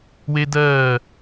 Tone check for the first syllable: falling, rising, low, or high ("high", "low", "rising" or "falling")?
high